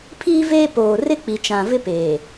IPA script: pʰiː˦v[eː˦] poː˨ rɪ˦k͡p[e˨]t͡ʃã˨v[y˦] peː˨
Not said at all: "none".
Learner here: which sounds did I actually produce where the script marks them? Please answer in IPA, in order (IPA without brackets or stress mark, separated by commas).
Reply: eː˦, i˨, ɪ˦